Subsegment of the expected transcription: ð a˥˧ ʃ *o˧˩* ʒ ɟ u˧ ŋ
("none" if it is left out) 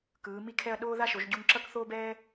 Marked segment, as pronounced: o˩˧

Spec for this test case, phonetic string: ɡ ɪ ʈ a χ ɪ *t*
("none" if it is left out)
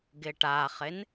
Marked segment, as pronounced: n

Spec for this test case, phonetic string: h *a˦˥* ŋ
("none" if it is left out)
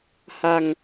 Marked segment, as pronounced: a˧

